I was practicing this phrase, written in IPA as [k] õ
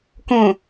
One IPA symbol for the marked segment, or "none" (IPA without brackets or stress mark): k